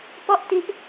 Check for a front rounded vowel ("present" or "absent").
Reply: absent